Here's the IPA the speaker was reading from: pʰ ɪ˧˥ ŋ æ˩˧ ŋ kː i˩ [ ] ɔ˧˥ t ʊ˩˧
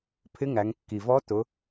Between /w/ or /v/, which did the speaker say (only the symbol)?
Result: v